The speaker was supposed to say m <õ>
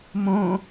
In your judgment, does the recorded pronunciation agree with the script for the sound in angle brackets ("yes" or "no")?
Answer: yes